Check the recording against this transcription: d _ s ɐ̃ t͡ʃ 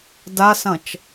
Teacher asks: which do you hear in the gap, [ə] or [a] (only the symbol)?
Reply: a